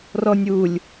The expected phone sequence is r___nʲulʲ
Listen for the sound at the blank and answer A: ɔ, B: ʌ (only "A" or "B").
A